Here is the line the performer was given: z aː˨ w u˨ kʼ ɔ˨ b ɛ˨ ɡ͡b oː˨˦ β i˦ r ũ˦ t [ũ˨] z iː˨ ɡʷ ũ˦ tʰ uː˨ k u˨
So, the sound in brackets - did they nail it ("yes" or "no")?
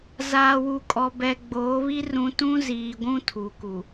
no